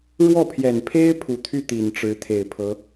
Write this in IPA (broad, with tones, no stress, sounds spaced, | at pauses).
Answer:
ɻ w ɔ˥˩ pʰ j ɛ˨˩ n pʰ e˥ ɪ̯ pʰ u˨˩ t̪ʰ y˥˩ t̪ i˨˩ n ʈ͡ʂ ɻ̩˧˥ t̪ʰ e˨˩ ɪ̯ pʰ ɤ˧˥